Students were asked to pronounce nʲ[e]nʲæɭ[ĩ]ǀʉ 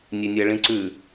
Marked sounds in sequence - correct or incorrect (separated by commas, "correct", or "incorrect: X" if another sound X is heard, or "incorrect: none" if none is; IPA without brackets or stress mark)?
correct, correct